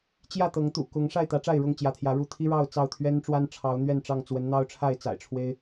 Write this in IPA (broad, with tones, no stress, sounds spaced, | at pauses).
t͡ɕ j ä˥˨ t̪ ɤ˨˦ ŋ t̪ ṵ˨˩ k ʊ˨˦ ŋ ʂ a˥˨ ɪ̯ t̪ ä˨˦ ʈ͡ʂ a˥˨ ɪ̯ ɻ ʊ˥˨ ŋ t͡ɕ j ä˨˦ t̪ʰ j ä˨˦ ɻ u˥˨ t̪ʰ i˦ ɻ ɑ˥˨ ʊ̯ t͡s ɑ˥˨ ʊ̯ t̪ʰ ɥ ɛ˦ n ʈ͡ʂ w a˦ n ʈ͡ʂʰ ɑ˨˦ ʊ̯ n̪ ɥ ɛ˥˨ n ʈ͡ʂ ɑ˥˨ ŋ t͡s w ə˨˦ n n̪ ɑ˦ ʊ̯ ʈ͡ʂʰ a˥˨ ɪ̯ t͡s a̰˨˩ ɪ̯ ʈ͡ʂʰ w e˦ ɪ̯